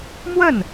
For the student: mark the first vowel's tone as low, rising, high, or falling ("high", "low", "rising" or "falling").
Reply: falling